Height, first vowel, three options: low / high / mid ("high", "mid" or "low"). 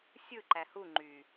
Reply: high